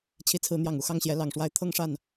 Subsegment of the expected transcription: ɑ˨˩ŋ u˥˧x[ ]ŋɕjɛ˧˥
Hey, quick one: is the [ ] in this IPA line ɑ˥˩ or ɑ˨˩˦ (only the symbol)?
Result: ɑ˥˩